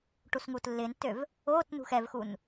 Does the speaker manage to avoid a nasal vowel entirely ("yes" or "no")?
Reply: yes